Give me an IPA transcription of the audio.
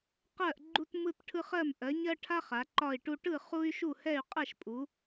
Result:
q ɜ˥˧ ʔ ɡ͡ǃ u˥ t m ɯ˥ t ʈʰ ɯ˥ χ ɜ˥˧ m ʔ ɜ˨˦ ɲ ɜ˥ ʈʰ a˥ χ a˨˦ ǃ ɒ˥˧ i̯ ʈ u˥ ʈ ɯ˥˧ χ u˥ y̯ ʃ u˥˧ h ɛ˥˧ y̯ qʼ ɛ˥˧ ʃ pʼ u˨˦

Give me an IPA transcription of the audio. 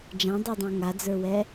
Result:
d͡ʒ ã dˤ ɛ dˤ õ ŋ a d͡z ə˞ w ɛ

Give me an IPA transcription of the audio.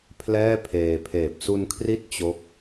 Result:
pʰ l ɛː˥˩ pʰ eː˧ pʰ eː˨˩ p̚ s u˧ n kʰ r i˦˥ t̚ t͡ɕ o˦˥ k̚

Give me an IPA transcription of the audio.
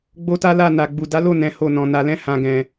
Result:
ɡ͡b o˦ t a˦ l a˦˨ n a˨ ɡ͡b u˨ d a˨˦ l o˦˨ n ɛ̃˨˦ h o˦˨ n ɔ̃˨ n a˨ l ɛ̃˧ h ã˨ ɡ ɛ̃˨

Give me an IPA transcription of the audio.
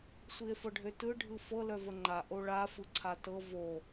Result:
sʷ i e̯ f ɤ ɖʱ ø t ɯ ɖʱ ɯ f ɤ l œ v ə ŋ͡ǃ a ʔ o ɭ a f ɯ ǀʰ a t ɤ v o

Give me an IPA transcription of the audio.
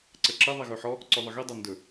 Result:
ǀ ə ǁ ɘ ðˤ i ɣ ɵ ħ ɔ | ǀ ɵ ðˤ ə ɣ i dˤ ɵ n d ɵ

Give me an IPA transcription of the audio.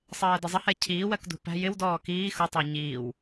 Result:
sˤ ɜː d ə zˤ ə h ɛ cʰ iː w ɜ k d ṳ p æ̤ j ɪ w d ɔː k iː x ʊ tˤ ɜ ɲ iː w

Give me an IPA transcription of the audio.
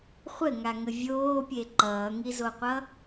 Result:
χʷ ɘ ŋ a ŋ ə vʲ oː pʲ e ǃ ʌː ŋ i z o qʷ ʌ

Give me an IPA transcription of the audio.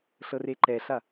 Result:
ɬ ɤ r e ǃ ɛ ɬ a

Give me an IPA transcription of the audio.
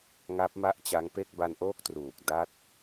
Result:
ŋ a˦˥ p̚ m a˥˩ ʔ t͡ɕ a˦˥ ŋ p e˥˩ k̚ b a˧ n ʔ oː˦˥ k̚ t r uː˨˩ k̚ d a˦˥ t̚

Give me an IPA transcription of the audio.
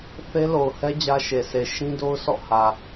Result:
θ e˦ l o˨ ʊ̯ h ɛ˦ d͡ʑ ä˦ ʃ e˨ s e˨ ʃ ĩ˦ d o˦ ʊ̯ sʰ ɔ̰˦˨ h ä˨

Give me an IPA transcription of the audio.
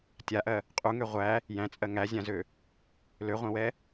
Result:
tʲ a ʔ ɜ | qʼ u ŋ ø ʁʷ æ | j æ̃ t͡sʼ ɜ ŋ æ zʲ ã z ø | l ø ʁʷ ɛ̃ w ɛ

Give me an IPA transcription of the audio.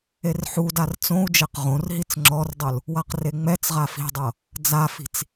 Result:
e r ħ u d a r t͡s õ u̯ d͡ʒ e q ʁ õ r ɦ i t͡s ŋ͡ǁ ɔ r dˤ ɯ l | w a q r e ŋ͡m ɛ t͡s ʁ a f i̤ dˤ ɤ | d͡z a f i̤ t͡s

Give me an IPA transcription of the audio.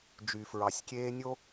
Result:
d͡ʒ y˨ f ɹ ɑ˨ sʲ kʲ eː˦ nʲ o˦

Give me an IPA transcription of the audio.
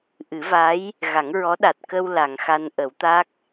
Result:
ʔ ɨ˨˩˦ v a˧˥ j | ɣ a˨˩˦ ŋ ɹ ɔ˧˥ ɗ a˨˩ t̚ k ə˧ w l a˨˩˨ ŋ x a˧ n ʔ ə˨˩˦ w t̪ a˦˥ k̚

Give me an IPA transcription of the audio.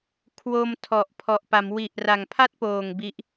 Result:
kʰ w o˧ m tʰ ɔ˨˩ ʔ pʰ ɔ˨˩ ʔ p a˩˦ m w i˨˩ ʔ r a˨˩ ŋ pʰ a˥˩ t̚ p oː˨˩ ŋ b i˦˥ ʔ

